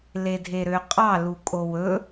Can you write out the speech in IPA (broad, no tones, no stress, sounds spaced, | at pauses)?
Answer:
l e dʱ e ɾ ø qʼ ɑ l u kʼ o w ɵ